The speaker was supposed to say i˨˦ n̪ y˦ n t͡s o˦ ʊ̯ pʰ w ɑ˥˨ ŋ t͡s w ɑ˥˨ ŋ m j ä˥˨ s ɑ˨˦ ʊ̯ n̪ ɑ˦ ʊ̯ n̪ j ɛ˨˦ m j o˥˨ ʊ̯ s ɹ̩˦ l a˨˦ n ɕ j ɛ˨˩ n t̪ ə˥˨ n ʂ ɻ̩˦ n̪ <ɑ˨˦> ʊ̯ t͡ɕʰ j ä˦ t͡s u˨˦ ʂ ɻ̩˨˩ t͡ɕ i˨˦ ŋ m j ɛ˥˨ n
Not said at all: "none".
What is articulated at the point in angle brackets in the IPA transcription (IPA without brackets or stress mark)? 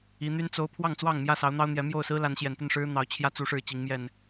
ɑ˨˦